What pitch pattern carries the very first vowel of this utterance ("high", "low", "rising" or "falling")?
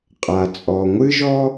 low